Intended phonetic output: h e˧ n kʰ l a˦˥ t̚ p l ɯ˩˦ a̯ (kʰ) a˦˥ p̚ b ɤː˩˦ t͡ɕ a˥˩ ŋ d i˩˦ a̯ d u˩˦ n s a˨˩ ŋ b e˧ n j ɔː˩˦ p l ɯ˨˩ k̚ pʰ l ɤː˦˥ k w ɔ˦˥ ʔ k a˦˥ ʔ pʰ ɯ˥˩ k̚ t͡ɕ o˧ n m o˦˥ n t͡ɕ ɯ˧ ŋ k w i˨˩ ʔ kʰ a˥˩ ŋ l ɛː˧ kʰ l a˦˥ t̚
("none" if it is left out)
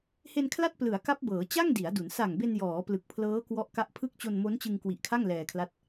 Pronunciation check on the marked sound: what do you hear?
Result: k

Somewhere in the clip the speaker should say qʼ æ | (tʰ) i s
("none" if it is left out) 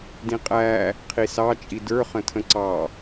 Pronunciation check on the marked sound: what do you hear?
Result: qʰ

